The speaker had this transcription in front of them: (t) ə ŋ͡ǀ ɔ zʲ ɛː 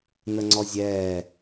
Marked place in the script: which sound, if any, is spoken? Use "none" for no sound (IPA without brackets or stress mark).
n